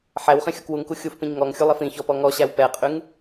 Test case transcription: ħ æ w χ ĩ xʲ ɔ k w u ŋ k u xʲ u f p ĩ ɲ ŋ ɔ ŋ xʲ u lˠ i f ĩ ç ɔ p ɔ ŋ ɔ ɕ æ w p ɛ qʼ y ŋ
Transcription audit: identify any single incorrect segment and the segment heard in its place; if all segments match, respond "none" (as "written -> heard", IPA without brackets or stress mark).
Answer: none